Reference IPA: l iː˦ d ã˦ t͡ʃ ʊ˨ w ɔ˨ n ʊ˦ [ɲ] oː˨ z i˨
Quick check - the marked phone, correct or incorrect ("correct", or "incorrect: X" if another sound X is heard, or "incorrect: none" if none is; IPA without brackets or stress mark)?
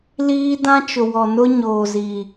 correct